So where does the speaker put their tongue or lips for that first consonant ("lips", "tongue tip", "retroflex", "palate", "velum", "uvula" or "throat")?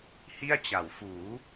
throat